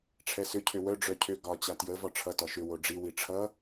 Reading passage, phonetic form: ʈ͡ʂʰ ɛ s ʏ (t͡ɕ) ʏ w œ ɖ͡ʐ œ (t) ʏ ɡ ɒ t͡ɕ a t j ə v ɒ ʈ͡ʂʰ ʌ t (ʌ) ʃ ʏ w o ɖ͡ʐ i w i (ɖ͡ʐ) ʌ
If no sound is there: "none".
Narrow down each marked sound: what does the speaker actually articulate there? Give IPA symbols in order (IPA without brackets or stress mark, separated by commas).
cʰ, cʰ, ɒ, ʈ͡ʂʰ